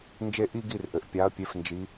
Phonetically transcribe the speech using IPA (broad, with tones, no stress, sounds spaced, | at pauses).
n d͡ʒ e˥˧ ʔ i˥˧ ɡ i˥˩ r ʔ ɘ˩˧ ʔ pʲ a˩˥ ɐ̯ pʲ e˩˥ f n d͡ʒ i˩˧